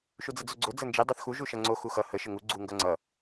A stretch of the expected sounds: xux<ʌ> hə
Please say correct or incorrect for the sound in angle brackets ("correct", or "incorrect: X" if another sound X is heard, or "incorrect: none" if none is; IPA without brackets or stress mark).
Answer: correct